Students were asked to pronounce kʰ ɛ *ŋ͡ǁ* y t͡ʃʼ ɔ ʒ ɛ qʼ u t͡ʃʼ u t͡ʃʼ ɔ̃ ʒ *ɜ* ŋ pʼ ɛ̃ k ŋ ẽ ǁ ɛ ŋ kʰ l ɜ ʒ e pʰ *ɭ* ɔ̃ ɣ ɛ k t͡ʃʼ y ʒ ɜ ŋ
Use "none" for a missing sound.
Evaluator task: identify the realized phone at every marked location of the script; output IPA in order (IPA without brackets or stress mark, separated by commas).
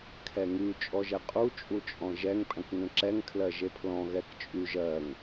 ŋ, ɛ, l